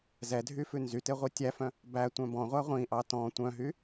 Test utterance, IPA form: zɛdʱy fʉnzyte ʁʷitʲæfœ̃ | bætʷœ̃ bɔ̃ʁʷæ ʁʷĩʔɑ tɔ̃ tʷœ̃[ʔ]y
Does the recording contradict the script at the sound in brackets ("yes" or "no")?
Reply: yes